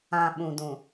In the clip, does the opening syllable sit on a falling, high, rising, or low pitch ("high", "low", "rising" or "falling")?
low